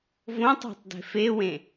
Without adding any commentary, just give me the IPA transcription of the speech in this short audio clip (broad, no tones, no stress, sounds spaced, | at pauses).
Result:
v õ tˤ e̤ tˤ d e̤ f e w ẽ